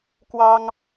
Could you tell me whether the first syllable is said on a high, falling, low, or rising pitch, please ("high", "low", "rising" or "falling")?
high